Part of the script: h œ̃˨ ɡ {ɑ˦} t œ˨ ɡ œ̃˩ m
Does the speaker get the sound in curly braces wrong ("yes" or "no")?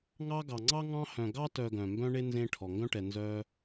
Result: no